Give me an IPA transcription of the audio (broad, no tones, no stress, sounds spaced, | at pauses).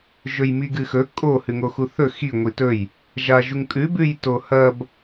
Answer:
ʒ ɵ j m i ɡ ɨ x ɵ kʼ o h ʉ ŋ o x u θ ɵ x i ŋʷ i t ɵ j | ʒ a ʒ u ŋ kʼ ʉ b ʉ j t o h ɐ b